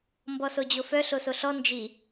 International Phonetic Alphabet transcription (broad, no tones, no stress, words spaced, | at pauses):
mbɔsod͡ʑofœ ɬosoɬɔ nd͡ʒi